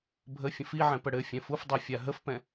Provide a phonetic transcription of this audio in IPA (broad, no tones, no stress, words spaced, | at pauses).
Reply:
bʱəfʲə̃f iʕɛ̃pə ɽɘ fʲɛ̃fufdˤɛ fʲaɦəfpɛ̃